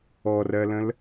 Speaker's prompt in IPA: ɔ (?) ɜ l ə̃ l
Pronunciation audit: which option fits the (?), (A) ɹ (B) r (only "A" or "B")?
B